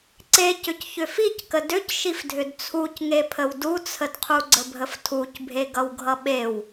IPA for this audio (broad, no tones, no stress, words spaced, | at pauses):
ǀecʏc çʏfickə dʏcʃifdʱʏd t͡sʰucŋepʰəw dut͡sʰədqʰu ɡ͡ǀəbʱəftʰucbʱe ɡʌwɡʱʌɓew